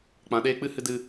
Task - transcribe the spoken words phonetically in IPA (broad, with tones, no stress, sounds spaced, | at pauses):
k͡p ã˧ ɗ eː˦ k͡p ɨ˦ h ɨ˦ d ɨ˦